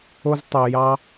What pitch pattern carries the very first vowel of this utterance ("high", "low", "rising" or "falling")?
high